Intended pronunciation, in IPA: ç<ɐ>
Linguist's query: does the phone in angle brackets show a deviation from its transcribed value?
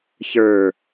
yes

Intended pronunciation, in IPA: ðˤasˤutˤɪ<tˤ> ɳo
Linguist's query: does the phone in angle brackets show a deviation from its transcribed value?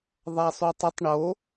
no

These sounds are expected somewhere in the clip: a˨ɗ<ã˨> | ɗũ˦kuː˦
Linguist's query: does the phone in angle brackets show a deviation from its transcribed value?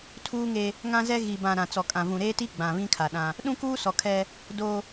yes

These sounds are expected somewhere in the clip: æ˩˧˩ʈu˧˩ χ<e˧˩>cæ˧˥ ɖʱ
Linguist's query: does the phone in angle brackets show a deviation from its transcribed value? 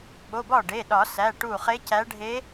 yes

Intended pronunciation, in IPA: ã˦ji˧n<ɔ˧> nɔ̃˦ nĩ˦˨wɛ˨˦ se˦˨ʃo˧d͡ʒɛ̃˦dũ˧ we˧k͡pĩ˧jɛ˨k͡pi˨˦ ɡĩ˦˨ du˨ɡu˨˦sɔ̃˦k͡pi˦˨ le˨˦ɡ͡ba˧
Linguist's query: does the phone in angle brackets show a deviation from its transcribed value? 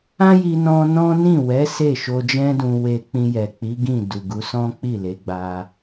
yes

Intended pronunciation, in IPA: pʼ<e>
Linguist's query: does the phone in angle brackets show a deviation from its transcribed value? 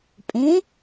yes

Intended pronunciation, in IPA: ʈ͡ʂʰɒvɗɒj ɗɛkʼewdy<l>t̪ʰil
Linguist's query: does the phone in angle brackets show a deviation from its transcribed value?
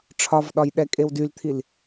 no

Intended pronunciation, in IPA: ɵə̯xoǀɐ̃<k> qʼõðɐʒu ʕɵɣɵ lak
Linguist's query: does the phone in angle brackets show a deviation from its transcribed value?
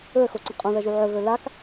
yes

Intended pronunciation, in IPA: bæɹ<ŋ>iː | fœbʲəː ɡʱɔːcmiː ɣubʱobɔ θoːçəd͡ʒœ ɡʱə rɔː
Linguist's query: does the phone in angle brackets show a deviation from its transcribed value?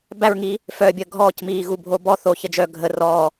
no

